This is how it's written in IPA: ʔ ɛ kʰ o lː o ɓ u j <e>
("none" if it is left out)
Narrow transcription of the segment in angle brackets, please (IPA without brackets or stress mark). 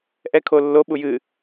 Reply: ɨ